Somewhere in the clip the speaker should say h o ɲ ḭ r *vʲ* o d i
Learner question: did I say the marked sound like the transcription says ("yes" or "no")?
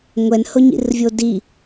yes